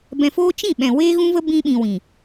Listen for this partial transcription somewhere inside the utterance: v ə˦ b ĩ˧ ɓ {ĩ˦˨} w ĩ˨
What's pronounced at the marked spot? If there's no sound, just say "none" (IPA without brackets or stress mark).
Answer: ĩ˨